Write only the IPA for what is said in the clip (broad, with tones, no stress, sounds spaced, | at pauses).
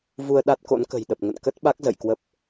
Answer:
v u˧ ə̯ ɗ a˦˥ t̚ k o̰˧˥ n k ə̤˨˩ j ɗ ə˨˩ p̚ ŋ ə̰˧˨ n k ə˦˥ t̚ ɓ a˦˥ k̚ z ə̰˧˨ j k w ə˦˥ p̚